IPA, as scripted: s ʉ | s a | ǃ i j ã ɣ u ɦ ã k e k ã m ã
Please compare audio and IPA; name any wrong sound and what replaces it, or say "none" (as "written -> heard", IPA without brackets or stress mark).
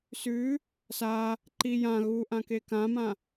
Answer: ɦ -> ʔ